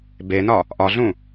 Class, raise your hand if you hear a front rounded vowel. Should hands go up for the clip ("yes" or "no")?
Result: no